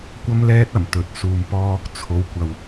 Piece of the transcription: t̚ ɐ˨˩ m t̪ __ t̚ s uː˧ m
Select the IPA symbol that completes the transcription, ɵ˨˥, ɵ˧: ɵ˨˥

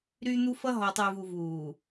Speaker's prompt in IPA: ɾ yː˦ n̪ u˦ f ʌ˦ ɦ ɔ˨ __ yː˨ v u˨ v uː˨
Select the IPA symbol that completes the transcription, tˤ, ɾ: tˤ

